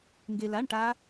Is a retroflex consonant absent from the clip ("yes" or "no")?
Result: no